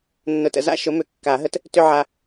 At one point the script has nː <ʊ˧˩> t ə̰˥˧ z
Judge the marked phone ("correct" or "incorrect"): correct